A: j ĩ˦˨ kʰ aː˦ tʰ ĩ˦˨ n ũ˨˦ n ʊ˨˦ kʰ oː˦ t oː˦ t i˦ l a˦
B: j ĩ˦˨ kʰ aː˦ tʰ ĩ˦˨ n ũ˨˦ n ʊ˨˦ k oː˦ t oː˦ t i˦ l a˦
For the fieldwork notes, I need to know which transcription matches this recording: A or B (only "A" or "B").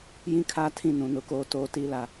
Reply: B